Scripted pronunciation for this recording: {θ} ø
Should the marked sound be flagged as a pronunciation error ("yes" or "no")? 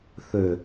no